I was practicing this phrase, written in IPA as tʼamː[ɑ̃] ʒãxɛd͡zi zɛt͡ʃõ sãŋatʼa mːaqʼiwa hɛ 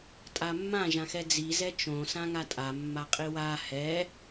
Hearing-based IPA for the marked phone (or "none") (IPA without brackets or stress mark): ã